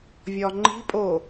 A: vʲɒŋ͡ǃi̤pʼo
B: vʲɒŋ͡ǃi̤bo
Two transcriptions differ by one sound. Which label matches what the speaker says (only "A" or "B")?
A